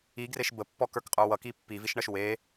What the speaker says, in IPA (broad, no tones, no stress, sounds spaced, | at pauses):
i ɡ r e ʃ b ə pː ɔ k ə˞ k qʼ ə˞ w ʌ k i pː i v i ʃ ɳ ʌ ʃ w e